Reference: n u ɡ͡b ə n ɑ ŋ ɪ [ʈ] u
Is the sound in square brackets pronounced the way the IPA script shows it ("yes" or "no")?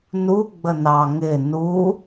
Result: no